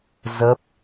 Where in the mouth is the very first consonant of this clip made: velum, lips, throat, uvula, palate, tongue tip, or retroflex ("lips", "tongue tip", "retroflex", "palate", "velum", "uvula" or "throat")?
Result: tongue tip